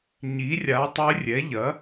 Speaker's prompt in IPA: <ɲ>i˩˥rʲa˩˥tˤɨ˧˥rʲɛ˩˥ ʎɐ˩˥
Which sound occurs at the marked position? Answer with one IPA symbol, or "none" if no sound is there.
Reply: ɲ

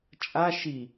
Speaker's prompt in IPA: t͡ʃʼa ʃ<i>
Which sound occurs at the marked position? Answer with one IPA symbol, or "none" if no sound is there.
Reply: i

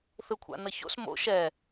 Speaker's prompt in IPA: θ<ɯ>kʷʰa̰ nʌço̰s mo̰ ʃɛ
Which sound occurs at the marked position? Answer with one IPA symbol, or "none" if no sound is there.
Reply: ɯ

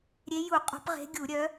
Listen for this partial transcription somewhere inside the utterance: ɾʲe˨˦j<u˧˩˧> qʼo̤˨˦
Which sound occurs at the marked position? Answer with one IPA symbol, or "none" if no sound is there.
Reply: u˧˩˧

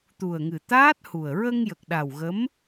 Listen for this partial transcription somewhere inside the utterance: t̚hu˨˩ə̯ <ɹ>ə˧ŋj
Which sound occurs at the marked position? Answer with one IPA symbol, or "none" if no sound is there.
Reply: ɹ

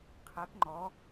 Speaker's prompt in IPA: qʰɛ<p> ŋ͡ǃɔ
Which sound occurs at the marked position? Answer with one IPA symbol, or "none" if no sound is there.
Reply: p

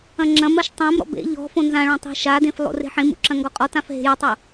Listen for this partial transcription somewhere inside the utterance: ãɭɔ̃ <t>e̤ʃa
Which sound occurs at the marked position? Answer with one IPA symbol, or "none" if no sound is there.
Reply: tˤ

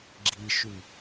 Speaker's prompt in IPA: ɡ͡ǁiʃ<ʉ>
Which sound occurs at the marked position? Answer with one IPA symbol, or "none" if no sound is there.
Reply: ʉ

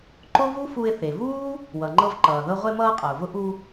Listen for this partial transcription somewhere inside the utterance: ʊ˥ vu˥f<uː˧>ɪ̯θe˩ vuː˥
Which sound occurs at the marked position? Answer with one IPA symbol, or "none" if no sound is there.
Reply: u˧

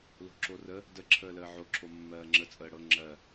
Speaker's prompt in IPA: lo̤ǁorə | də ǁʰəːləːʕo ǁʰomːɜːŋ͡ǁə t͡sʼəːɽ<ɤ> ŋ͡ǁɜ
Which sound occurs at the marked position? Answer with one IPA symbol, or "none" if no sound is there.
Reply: ɤ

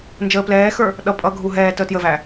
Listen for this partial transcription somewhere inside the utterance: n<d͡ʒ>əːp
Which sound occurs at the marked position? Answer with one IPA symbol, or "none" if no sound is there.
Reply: d͡ʒ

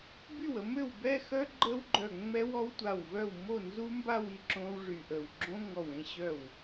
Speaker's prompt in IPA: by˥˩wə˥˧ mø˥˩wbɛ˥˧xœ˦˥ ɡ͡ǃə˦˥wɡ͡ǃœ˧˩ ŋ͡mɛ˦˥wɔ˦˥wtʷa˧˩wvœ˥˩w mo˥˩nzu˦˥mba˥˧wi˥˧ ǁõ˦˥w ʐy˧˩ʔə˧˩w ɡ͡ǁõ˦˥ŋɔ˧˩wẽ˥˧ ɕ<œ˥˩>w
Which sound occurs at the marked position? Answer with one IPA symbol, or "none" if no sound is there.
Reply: œ˥˩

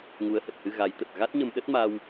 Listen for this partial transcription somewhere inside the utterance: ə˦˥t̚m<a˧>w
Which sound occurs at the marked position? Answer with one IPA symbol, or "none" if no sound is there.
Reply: a˧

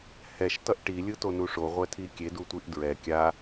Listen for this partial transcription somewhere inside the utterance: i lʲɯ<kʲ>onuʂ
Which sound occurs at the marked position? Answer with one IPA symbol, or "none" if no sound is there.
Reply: t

